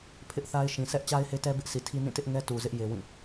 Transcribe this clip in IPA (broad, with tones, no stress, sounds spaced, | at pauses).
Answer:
pʰ ɪ˦ ʔ θ a˦ ɪ̯ ʃ ĩ˨ s ɛ˦ ʔ t͡ɕ a˦ ɪ̯ h e˦ t ɛ˦ b ɪ˦ ʔ s i˨ tʰ i˦ n ĩ˦˨ t ɪ˦ ʔ ŋ ɛ˦ t u˨ z ɪ˦ ʔ j e˦ w ĩ˦˨